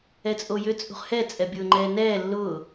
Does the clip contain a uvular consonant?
yes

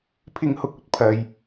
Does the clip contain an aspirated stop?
yes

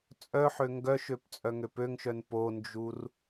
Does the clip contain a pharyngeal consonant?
yes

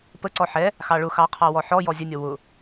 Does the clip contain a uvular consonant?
yes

